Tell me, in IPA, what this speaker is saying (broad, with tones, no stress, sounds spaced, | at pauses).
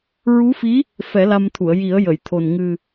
ɹ u˧˥ f i˧˥ | f ɛ˨˩˦ l a˧ m t̪ʰ u˨˩˨ ə̯ j i˨˩˦ ə̯ j ə˨˩˨ j t̪ʰ o˨˩ n ŋ ɨ˨˩